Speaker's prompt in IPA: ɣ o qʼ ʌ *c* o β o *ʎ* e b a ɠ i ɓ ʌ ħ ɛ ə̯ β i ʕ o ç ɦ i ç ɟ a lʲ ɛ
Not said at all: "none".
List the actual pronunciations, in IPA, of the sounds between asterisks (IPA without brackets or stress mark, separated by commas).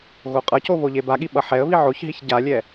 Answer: c, ʎ